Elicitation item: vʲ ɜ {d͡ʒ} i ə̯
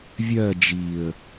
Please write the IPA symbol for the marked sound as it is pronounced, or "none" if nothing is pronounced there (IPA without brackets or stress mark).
d͡ʒ